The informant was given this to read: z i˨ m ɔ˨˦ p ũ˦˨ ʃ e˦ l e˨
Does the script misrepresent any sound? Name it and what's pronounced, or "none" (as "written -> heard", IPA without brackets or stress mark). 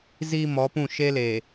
none